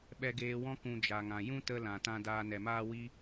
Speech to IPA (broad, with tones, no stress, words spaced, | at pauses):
ɓɛ˧ɡeː˧wɔ̃˦ kũ˧d͡ʒa˨ŋã˨ jũ˦tə˧ lã˨tã˧ daː˧nɛ˨maː˦wi˦